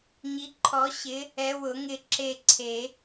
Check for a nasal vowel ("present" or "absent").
absent